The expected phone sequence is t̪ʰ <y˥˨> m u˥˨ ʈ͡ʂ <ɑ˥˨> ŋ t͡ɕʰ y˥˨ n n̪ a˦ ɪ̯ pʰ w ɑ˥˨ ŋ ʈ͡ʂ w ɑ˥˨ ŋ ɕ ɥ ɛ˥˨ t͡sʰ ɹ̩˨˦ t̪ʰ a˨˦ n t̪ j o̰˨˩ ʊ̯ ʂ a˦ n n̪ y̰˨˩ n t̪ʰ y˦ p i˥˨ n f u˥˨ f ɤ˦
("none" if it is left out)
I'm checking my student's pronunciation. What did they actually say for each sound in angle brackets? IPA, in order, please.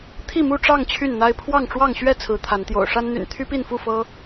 i˥˨, ɑ˥˨

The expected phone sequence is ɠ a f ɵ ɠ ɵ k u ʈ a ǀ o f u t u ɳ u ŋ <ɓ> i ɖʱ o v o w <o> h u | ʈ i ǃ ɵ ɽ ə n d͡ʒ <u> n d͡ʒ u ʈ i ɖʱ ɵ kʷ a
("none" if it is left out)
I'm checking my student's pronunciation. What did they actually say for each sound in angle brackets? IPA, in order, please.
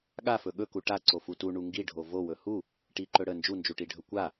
ɡ, ɵ, u

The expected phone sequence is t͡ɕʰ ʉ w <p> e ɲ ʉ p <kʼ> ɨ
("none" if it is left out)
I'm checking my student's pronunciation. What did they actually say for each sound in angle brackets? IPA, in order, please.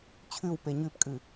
p, kʼ

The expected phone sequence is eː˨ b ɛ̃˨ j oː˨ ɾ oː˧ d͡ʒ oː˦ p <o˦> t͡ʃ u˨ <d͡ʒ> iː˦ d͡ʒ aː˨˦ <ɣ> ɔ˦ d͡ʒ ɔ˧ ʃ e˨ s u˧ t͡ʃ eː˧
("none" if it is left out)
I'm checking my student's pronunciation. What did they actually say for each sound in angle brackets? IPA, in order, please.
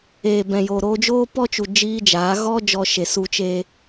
ɔ˦, d͡ʒ, ɣ

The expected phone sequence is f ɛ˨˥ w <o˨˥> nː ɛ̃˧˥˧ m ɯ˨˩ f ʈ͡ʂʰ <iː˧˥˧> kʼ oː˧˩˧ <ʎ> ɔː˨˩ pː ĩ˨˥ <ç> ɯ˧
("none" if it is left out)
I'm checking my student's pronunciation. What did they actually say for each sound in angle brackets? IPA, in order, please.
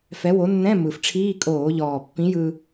o˨˥, iː˧˥˧, ʎ, j

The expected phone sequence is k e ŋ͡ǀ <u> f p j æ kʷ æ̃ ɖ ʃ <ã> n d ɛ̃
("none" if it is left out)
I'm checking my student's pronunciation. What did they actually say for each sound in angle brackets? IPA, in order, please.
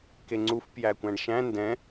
u, æ̃

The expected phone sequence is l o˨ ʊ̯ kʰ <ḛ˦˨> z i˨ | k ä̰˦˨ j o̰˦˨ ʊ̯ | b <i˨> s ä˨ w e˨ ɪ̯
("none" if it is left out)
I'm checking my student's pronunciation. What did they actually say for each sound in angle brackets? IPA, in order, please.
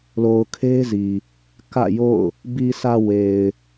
e˦, i˨

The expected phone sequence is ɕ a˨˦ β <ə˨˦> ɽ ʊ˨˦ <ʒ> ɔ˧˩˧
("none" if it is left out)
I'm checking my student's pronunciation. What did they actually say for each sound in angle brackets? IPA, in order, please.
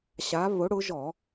ʊ˨˦, ʒ

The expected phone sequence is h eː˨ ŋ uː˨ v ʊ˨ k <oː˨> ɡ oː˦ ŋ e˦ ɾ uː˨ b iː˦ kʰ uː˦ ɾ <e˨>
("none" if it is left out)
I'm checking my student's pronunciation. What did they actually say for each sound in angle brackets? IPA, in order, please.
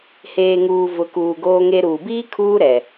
uː˨, ɛ˨

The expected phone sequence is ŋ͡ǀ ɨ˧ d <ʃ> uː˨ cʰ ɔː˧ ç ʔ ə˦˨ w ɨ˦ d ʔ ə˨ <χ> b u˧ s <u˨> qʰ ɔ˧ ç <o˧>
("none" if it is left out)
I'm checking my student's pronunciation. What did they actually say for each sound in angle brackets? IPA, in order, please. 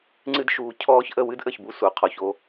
ʃ, ç, u˨, o˦

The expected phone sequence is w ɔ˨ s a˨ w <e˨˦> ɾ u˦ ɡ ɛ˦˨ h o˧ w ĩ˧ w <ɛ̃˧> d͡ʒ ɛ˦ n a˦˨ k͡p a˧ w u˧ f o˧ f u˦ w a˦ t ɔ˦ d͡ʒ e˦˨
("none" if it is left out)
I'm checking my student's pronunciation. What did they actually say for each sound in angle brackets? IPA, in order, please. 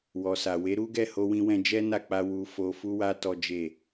e˨˦, ɛ̃˧

